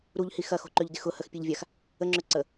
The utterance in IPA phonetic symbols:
ɾ u ʎ h i x ɐ x o̤ ǃ ø ʎ d ɪ x ʊ h ə x pʲ e ʎ vʲ a x | ə ŋ͡ǁ ø ǀ ə

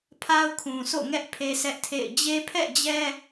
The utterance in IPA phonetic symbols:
pʰ a˦ ʊ̯ kʰ ũ˨ sʰ o̰˦˨ ŋ ɛ˦ ʔ pʰ e˦ sʰ ɛ˦ ʔ tʰ ḛ˦˨ ɪ̯ d͡ʑ e˦ pʰ ɛ̰˦˨ d͡ʑ ɛ˦

